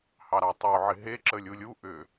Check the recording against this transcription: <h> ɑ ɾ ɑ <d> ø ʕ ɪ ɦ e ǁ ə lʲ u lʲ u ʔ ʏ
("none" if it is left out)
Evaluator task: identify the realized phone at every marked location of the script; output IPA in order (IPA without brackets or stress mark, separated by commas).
h, tˤ